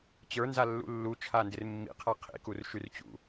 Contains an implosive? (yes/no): no